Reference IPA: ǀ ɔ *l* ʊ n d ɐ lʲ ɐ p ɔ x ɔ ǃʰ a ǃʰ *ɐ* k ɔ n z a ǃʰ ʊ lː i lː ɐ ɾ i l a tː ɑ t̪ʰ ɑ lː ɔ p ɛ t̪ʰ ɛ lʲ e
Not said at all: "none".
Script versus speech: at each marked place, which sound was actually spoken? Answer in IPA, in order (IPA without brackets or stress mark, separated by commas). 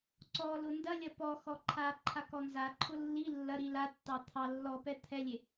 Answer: l, a